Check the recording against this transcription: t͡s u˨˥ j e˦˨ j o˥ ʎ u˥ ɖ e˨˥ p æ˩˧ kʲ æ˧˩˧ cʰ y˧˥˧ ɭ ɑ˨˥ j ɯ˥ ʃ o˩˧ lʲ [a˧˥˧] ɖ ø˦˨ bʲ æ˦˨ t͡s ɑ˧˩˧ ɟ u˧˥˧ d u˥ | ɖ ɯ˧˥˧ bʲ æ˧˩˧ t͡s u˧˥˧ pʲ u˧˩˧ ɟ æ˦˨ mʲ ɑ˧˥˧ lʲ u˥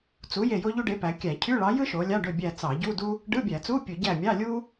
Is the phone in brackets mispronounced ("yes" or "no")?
yes